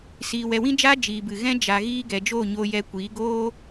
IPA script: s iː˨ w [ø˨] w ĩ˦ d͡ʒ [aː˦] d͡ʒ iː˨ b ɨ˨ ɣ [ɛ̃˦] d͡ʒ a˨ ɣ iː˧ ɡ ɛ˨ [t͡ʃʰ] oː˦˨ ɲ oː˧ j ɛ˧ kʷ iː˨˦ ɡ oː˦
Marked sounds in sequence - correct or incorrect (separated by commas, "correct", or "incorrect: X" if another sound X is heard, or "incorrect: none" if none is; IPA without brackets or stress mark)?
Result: incorrect: ɛ˨, correct, correct, incorrect: d͡ʒ